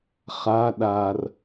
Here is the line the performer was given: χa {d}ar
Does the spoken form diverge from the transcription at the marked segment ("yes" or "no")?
yes